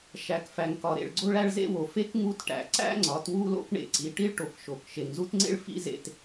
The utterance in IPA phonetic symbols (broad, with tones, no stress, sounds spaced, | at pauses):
ʃ æ˨ k f æ˨ ŋ k ɒ˨ ɾ ḛ˨ ɭ ɡ͡ǀ o˦ ɭ æ˦ ɭ z ḛ˦ w o˨ f e˦ k ŋ u˦ t ʈ æ̰˨ ǀ æ̰˦ ŋ͡ǀ ɒ˨˦ t w u˦ l o̰˦ k ɳ ḛ˨ ǀ i˨ ʈ i˦ ɭ ʈ o˨ k ʃ o˨ k ʃ e˨ ŋ z u˦ t ŋ͡ǀ ḛ˦ ɭ f ḭ˦ z ḛ˨ t